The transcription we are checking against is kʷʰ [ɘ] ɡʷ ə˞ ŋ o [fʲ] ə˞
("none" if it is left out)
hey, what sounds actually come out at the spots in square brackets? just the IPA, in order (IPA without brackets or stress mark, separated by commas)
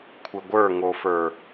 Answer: ɘ, f